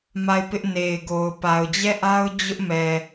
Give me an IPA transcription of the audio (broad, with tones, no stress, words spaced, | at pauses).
ma˦˨ɪ̯pɪ˦ʔ ne˨ɪ̯ɡo˨ʊ̯ pa˨ʊ̯d͡ʑɛ˦˨ʔa˦ʊ̯ d͡ʑʊ˦ʔmɛ˨